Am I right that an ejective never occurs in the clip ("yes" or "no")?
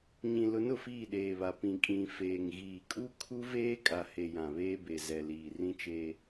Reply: no